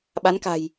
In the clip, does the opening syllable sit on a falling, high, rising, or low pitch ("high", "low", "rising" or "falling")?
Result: rising